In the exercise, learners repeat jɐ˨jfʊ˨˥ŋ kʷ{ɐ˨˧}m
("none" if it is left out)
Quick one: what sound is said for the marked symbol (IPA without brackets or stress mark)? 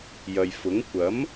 ɐ˨˥